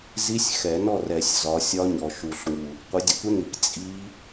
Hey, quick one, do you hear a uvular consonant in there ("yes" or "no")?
yes